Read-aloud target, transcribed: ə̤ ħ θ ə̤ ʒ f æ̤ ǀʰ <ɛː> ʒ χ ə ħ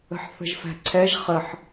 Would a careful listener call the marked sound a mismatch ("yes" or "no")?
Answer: yes